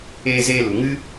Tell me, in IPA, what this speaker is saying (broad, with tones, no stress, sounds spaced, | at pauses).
eː˧ z eː˧ l u˨ ŋ ɨ˦